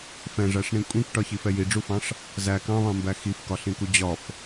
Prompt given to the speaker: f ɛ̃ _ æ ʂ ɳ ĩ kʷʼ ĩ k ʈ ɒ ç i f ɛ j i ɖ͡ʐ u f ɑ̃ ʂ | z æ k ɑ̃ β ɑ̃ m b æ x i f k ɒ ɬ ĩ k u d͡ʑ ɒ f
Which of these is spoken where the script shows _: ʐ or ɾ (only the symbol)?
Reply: ʐ